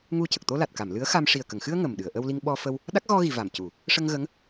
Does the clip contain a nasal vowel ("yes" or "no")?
no